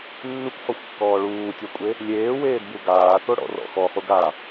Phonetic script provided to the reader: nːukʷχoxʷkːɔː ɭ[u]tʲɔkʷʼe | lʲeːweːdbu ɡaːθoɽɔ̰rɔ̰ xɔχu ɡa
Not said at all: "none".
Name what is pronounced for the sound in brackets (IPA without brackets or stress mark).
uː